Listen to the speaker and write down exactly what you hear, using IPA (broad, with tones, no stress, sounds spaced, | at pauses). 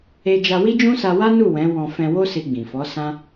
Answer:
e˦ d͡ʒ a˧ w i˦ d͡ʒ ũ˦ s a˧ w a˦ n u˦˨ w ɛ̃˨˦ w ɔ̃˧ f ɛ̃˧ w o˦ s i˧ ɡ͡b ĩ˨ f ɔ˨˦ s ã˦